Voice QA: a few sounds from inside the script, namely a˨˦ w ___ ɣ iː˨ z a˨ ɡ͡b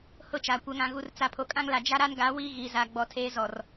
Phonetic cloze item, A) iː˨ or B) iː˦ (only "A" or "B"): B